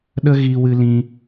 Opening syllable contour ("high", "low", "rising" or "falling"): high